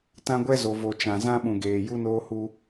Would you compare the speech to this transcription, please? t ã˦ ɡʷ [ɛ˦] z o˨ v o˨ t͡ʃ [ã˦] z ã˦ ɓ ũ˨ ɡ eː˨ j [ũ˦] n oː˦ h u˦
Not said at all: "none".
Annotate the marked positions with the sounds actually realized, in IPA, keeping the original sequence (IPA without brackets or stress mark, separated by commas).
ɛ˦, ã˨, u˦